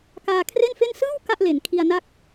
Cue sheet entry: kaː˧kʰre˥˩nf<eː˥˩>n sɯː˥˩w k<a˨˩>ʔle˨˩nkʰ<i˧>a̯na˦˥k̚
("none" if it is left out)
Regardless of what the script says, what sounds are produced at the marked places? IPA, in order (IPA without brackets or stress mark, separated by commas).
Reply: e˥˩, a˥˩, i˧